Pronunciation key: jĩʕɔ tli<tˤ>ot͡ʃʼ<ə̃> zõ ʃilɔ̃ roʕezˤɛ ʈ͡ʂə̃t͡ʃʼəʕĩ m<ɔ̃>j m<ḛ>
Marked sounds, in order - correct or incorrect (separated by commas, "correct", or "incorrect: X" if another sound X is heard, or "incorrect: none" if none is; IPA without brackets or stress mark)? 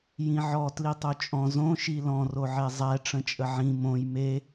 correct, incorrect: ɔ̃, incorrect: õ, incorrect: e